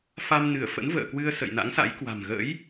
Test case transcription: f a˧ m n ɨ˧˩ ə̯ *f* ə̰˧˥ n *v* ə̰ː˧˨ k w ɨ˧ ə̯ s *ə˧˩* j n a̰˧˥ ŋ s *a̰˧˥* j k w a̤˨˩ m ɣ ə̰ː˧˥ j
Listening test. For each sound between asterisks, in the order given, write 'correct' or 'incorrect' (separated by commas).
correct, correct, incorrect, correct